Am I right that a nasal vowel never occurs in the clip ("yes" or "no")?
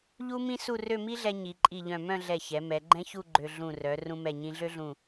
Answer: no